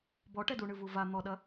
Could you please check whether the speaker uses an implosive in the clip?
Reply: yes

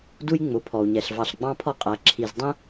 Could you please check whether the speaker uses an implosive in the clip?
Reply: no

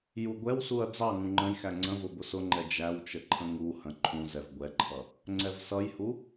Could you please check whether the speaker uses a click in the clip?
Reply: yes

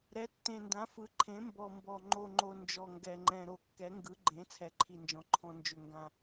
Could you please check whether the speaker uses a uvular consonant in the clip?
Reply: no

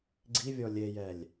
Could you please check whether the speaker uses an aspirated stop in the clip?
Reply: no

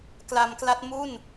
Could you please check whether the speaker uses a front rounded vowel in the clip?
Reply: no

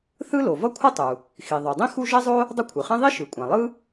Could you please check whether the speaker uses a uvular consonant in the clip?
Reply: yes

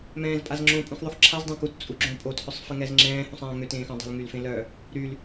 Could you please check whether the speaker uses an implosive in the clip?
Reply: no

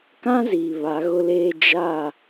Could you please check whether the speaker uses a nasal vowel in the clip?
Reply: yes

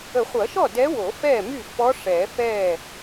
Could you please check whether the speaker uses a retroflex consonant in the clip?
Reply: yes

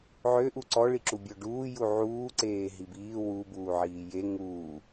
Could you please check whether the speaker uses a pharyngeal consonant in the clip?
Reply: yes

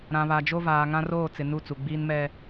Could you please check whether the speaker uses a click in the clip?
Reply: no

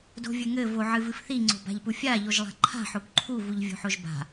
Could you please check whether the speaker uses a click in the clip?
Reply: yes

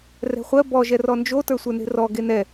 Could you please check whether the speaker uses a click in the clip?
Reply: no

